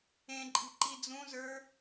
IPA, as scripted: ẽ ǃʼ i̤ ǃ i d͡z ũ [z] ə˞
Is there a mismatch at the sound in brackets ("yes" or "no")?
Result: no